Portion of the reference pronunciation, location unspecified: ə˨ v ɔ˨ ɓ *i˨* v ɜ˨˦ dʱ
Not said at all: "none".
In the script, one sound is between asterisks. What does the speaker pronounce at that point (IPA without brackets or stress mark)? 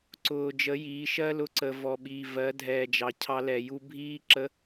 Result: iː˨